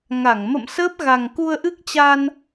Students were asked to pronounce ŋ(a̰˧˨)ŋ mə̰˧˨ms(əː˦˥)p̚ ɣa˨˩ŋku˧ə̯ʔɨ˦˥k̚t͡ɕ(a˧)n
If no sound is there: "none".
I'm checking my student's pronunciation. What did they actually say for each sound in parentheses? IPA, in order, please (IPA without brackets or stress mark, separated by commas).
a˧˩, əː˦˥, a˧